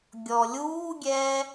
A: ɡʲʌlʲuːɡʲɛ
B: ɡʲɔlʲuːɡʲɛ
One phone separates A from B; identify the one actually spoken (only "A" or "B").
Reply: B